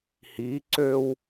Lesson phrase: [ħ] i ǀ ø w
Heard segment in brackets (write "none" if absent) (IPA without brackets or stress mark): h